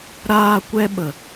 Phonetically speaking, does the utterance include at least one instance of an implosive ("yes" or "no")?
yes